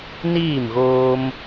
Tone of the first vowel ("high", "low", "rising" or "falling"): falling